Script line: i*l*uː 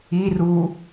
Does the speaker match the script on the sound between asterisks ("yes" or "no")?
no